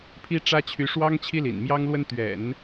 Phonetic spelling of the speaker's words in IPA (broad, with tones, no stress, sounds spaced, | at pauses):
pʰ i˥ ʈ͡ʂ ä˥ t͡ɕʰ y˧˥ ʂ w ɑ˥ ŋ t͡ɕʰ i˥ l ḭ˨˩ n m j ɑ˥ ŋ l w ə˥ n t̪ ɥ ɛ̰˨˩˦ n